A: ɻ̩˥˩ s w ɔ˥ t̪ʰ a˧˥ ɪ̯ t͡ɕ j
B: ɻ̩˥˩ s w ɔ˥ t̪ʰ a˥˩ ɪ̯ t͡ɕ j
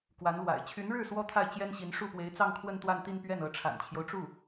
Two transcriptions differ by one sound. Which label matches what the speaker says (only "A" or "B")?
B